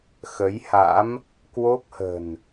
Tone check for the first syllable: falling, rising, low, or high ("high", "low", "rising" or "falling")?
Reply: rising